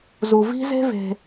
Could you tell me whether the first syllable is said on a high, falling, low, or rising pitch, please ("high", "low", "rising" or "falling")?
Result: low